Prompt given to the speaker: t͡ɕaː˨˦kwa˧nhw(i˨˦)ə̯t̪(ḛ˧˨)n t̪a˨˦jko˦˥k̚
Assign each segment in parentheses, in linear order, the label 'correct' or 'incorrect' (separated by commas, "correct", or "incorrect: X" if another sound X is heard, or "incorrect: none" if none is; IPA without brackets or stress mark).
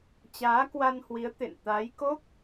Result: correct, correct